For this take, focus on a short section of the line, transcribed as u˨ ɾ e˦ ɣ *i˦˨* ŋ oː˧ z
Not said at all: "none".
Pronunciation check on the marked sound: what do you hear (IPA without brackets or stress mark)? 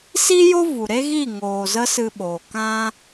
i˦˨